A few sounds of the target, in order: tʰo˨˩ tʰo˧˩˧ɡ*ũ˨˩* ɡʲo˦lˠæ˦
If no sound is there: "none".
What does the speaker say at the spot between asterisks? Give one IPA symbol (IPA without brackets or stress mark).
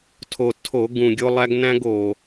ũ˨˩